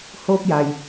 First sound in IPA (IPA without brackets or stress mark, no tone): h